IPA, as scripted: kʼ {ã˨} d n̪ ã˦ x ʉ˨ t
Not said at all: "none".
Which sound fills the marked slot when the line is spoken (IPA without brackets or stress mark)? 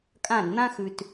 ã˦˨